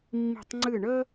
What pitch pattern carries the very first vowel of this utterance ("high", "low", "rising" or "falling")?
falling